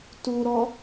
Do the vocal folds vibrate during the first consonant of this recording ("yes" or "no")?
no